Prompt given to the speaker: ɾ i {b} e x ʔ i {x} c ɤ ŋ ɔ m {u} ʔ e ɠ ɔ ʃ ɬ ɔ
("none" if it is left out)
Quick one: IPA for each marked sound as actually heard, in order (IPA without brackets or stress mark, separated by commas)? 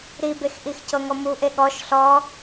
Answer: b, x, u